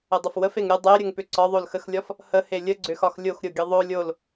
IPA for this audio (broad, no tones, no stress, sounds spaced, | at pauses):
ə dˤ ʏ f w ə f e ŋ ɾʲ ə dˤ e ɾʲ ə ŋ p ʏ ǀ ɒ ðˤ o l x ə x lʲ ɒ f | h ə h e lʲ ə ɡ͡ǀ ʏ x ɒ x lʲ o x ɾʲ o ɡʲ ə ðˤ o lʲ o l